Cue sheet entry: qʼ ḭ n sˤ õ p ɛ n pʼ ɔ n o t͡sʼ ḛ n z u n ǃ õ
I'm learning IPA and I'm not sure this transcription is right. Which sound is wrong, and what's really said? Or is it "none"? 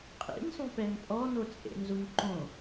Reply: none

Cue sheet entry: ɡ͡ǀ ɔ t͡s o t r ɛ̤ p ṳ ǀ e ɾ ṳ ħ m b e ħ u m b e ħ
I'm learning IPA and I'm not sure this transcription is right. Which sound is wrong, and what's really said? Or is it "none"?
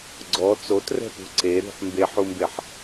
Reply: none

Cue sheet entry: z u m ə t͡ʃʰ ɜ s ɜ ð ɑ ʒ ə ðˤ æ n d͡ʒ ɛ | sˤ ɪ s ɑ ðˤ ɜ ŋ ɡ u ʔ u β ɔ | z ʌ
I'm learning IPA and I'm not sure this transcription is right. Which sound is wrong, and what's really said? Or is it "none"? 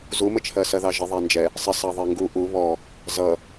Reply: none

